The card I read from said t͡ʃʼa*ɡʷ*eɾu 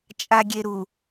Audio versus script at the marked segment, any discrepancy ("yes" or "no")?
yes